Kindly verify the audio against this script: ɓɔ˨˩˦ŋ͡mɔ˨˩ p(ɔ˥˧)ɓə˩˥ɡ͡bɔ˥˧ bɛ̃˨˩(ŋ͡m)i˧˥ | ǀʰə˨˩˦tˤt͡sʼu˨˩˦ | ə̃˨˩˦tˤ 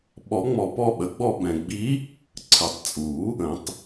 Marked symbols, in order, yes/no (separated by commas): yes, no